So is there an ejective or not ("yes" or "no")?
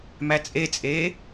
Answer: yes